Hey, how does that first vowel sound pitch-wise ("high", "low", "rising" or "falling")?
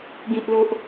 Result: low